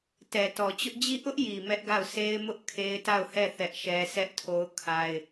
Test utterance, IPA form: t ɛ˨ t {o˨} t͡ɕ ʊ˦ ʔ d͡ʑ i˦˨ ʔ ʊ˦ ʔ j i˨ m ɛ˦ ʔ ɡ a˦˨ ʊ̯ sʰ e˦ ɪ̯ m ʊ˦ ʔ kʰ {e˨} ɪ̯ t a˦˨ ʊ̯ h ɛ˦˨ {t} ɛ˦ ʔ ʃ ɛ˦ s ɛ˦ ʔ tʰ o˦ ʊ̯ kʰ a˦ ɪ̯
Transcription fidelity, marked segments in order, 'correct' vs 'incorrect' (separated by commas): incorrect, incorrect, incorrect